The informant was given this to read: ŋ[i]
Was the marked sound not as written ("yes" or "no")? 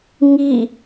no